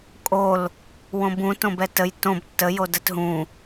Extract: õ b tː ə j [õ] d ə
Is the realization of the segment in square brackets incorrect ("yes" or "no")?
yes